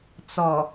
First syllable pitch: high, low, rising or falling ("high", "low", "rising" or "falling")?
low